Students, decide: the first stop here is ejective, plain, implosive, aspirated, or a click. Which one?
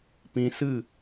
plain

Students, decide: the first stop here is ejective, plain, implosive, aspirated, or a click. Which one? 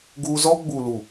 plain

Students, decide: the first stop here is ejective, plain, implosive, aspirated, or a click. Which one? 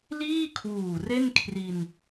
aspirated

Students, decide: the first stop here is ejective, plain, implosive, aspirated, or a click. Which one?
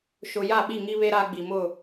implosive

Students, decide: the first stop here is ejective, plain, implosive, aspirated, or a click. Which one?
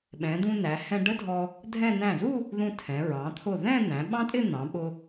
implosive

